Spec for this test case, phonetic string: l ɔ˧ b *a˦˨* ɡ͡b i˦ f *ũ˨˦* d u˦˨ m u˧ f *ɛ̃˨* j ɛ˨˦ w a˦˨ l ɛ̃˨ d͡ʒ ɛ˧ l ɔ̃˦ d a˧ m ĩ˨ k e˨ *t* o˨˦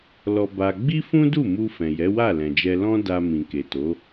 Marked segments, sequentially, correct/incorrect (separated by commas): incorrect, incorrect, correct, correct